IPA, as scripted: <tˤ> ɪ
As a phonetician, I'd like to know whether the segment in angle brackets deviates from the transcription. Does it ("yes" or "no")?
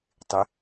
no